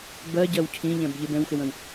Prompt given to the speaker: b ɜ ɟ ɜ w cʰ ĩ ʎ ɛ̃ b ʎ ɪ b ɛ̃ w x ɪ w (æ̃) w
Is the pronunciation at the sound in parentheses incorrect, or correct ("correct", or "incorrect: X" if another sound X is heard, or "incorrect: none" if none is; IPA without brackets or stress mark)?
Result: incorrect: ə̃